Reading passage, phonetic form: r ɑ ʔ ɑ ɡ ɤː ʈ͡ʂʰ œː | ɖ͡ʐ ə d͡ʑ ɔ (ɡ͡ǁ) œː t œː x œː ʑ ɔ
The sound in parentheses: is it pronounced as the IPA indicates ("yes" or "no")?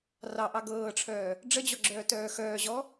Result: yes